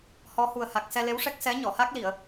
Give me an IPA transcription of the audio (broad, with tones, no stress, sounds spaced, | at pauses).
h ɔ˧˥ h u˨˩ ə̯ h a˨˩ k̚ s ɛ˧ l e˧˥ w ʂ ɛ˦˥ k̚ s ɛ˧˥ ɲ ɔ˨˩˨ h a˦˥ k̚ l i˨˩˨ ə̯